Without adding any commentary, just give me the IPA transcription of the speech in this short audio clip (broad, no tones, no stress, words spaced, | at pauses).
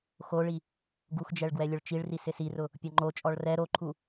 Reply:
xoɭi | ɡuxd͡ʒɛɭ ɡwɛlʲʊɭt͡ʃiɭri sɪsirʊ | pʲɔŋ͡ǃot͡ʃʼɔɭ rɛ ɾoǃʰu